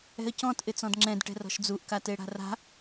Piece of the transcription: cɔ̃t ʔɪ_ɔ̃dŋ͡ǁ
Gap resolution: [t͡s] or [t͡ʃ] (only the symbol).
t͡s